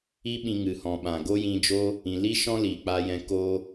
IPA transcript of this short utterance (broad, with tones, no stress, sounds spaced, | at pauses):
i˦ ɓ ĩ˧ ŋ ɨ˨ h ɔ̃˨ ɓ ã˨ ɡ o˦ j ĩ˧ d͡ʒ o˦ | ĩ˨ l i˦ ʃ ɔ̃˦ l iː˨ k͡p a˧ j ɛ̃˧ k o˦